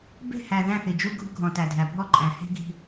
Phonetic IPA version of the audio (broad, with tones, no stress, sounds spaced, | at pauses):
b e̤˦˨ h æ˨ ð æ̃˦˨ θ i˨ d͡ʒ u˦ ɡʱ ṳ˦ ɡʱ ɔ̃˨ t æ˨ dʱ æ˨ bʱ ɔ˦ ǃʼ æ̃˨ h e̤˦ ɡʱ i̤˦